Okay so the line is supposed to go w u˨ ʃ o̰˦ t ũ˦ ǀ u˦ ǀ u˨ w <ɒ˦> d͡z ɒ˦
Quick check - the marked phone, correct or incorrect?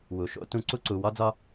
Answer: correct